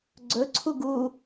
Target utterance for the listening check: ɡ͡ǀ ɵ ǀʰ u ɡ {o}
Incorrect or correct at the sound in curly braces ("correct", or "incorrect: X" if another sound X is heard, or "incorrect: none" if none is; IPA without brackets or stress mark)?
incorrect: u